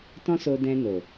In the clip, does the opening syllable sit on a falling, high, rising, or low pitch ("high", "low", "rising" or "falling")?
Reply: high